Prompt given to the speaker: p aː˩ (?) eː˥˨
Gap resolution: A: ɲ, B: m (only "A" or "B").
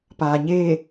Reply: A